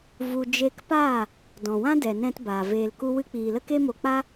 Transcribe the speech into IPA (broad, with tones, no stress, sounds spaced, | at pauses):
v u˧ d͡ʒ e˦ k p aː˦˨ | d ɔ̃˨ w ã˦ d ɛ˨ n ɛ̃˧ t b aː˨ v eː˧ l k u˦ w ɨ˦ k͡p iː˨ l ə˦ k e˦ m o˧ k͡p a˦